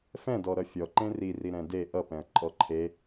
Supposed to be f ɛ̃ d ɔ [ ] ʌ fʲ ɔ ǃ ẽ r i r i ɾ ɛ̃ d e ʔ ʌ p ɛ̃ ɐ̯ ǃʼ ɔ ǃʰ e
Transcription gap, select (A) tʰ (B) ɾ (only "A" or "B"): B